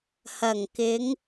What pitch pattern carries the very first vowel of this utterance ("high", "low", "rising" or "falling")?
low